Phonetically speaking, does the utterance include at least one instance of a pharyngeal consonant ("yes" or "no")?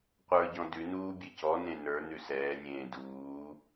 no